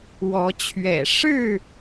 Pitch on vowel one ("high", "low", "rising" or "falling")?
rising